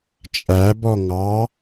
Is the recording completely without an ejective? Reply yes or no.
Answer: no